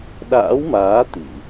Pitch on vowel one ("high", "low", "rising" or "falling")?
rising